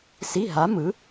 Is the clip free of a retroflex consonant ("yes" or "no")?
yes